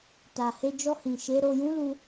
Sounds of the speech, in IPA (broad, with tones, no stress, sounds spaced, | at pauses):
t a˨ h e˧ d͡ʒ ɔ˧ h ĩ˨ ʃ e˨˦ ɾ o˧ j ũ˦ l u˧